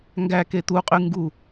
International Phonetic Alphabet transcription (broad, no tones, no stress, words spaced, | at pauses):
ŋɡæ ket̪uqʼy ŋɡu